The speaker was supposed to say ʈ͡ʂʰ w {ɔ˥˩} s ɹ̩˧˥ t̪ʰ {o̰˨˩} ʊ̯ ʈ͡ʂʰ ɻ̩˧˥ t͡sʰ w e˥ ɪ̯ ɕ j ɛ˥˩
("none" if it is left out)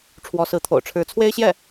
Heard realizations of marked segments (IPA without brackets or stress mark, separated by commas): ɔ˧˥, o̰˨˩